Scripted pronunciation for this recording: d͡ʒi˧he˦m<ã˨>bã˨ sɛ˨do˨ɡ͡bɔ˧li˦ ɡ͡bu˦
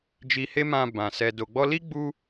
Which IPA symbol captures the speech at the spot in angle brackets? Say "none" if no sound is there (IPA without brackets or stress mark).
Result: ã˧